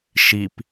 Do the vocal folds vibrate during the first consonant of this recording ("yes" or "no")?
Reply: no